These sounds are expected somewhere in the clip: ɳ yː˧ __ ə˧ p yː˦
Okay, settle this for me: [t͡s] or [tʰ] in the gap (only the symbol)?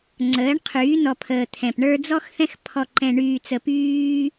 t͡s